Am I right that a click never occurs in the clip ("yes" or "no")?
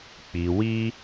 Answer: yes